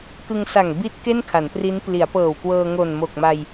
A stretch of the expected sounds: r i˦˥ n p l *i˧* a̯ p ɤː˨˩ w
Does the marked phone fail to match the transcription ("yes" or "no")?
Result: yes